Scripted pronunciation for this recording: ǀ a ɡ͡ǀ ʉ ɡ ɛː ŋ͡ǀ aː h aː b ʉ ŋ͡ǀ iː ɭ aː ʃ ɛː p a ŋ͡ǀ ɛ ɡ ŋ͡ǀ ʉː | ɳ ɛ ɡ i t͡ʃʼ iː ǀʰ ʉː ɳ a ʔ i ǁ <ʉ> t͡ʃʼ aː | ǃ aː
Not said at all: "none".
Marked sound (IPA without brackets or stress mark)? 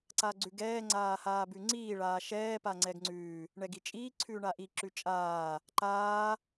ʉ